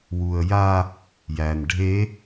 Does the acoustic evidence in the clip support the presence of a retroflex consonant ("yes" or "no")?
yes